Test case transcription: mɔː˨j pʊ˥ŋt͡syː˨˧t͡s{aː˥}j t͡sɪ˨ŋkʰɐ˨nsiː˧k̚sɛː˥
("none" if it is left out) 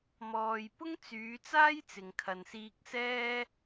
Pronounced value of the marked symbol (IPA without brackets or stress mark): aː˥